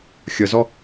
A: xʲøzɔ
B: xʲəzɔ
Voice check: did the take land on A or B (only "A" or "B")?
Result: B